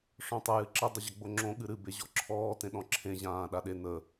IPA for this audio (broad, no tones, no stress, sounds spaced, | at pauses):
ʂ ɔ̃ tˤ ə j ɨ ǁ ə dˤ o ʑ ʌ ɡ͡b o ŋ͡ǁ õ ɠ ɨ ɾ ɨ b e ʑ ɔ ǁʰ ɔː t ẽ ɗ ɔ̃ ǁʰ ẽ ʑ ãː ɗ a ɗ e n ə